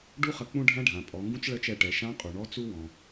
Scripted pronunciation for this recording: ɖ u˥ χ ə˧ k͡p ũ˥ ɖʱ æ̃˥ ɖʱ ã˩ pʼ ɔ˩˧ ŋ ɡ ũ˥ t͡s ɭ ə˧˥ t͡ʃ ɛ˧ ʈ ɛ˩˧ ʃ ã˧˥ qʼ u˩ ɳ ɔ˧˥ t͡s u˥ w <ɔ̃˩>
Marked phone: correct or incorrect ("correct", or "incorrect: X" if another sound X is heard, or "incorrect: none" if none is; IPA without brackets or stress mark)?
correct